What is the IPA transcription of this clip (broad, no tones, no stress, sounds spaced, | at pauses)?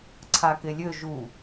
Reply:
ǀʰ a k e lʲ ø ʒ u